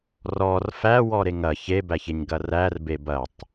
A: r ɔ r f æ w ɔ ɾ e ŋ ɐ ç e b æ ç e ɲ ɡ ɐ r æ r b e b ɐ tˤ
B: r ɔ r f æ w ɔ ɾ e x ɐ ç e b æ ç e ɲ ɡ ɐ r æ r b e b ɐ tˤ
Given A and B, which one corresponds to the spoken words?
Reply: A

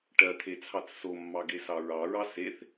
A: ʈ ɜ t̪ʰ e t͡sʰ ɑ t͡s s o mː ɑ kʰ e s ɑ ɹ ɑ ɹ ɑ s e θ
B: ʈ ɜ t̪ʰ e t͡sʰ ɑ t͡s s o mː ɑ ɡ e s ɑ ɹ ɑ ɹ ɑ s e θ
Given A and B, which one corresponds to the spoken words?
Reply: B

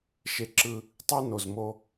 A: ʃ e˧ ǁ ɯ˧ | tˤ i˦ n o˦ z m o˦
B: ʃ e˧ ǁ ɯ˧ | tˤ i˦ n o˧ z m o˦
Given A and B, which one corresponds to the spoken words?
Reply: B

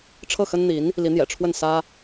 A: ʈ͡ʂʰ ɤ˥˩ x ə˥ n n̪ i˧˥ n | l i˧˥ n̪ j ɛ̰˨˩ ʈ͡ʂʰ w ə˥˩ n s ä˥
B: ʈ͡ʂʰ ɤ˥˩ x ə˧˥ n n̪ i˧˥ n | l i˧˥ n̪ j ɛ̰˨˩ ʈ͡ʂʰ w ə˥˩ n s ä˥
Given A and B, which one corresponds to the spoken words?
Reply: A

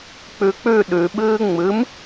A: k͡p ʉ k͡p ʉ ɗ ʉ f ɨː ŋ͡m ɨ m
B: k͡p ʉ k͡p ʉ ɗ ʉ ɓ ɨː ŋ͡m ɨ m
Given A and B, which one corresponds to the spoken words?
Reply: B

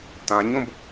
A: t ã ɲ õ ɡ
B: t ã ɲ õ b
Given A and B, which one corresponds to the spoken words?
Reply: B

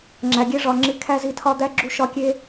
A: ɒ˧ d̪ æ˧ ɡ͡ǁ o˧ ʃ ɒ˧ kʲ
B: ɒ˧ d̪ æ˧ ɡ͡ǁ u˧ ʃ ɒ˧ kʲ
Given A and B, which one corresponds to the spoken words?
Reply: B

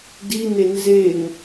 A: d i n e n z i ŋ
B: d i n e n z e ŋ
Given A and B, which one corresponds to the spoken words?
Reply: B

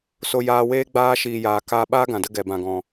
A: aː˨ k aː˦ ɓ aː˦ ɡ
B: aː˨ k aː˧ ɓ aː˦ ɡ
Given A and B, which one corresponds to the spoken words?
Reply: B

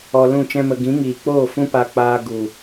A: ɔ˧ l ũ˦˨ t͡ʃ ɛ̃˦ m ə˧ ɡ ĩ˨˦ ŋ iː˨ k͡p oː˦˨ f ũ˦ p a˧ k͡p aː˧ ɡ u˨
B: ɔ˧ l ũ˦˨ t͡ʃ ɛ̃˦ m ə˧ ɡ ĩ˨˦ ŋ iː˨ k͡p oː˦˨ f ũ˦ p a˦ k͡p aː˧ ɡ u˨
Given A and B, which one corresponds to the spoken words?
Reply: A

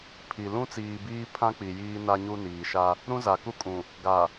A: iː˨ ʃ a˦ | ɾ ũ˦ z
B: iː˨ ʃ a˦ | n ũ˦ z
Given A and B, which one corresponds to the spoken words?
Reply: A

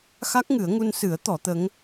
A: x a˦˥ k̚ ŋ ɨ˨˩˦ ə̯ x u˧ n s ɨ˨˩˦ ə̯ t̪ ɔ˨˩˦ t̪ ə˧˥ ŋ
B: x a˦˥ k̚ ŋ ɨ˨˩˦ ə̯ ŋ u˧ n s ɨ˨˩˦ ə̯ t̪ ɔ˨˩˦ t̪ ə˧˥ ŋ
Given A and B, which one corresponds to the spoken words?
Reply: B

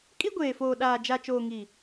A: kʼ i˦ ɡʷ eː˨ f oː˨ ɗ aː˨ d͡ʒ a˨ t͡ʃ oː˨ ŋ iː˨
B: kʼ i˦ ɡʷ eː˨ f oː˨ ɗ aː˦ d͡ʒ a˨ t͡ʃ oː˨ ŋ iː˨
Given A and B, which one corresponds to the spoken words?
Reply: A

